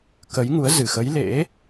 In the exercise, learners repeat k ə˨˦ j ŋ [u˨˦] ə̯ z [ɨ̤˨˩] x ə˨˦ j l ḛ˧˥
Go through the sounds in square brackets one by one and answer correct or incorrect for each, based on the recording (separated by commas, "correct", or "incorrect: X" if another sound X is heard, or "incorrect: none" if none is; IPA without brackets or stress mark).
correct, incorrect: ɨ˧˩